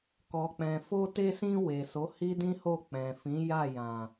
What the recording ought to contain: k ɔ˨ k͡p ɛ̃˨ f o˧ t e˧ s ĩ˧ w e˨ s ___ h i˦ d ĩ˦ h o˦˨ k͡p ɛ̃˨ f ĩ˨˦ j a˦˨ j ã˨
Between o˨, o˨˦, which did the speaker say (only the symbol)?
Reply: o˨˦